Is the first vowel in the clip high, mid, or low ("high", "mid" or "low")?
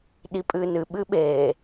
high